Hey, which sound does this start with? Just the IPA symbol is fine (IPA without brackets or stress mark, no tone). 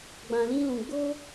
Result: ɡ͡b